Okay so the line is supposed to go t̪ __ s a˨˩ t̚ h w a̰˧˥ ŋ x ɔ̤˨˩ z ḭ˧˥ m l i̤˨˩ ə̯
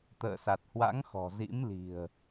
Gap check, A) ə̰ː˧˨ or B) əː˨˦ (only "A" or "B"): A